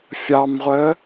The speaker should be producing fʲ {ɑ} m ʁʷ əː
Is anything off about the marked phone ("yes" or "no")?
no